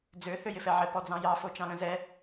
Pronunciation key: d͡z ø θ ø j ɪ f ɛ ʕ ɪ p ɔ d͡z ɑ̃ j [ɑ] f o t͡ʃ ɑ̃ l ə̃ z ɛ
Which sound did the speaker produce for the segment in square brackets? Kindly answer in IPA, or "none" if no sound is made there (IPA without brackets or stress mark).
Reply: ɑ